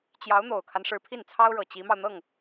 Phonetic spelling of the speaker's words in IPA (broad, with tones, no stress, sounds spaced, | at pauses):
t͡ɕ j ɑ˧˥ ʊ̯ n̪ o˨˩ ʊ̯ kʰ a˦ n ʂ ɻ̩˧˥ pʰ i˥˩ n t͡sʰ ɑ˥ ʊ̯ ɻ ɤ˨˩ t͡ɕ i˧˥ m ɑ˧ ʊ̯ n̪ ɤ˥˩ ŋ